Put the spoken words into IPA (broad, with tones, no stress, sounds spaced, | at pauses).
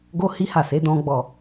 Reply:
ɡ o˦ h i˦ h a˦˨ s e˨˦ d ɔ̃˦ ɡ͡b ɔ˦˨